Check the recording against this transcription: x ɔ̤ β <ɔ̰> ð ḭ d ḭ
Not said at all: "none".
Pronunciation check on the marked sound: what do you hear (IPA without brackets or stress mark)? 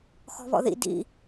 ɔ̰